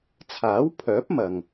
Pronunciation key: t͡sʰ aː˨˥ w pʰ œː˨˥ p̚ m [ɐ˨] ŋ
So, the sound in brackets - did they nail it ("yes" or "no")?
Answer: yes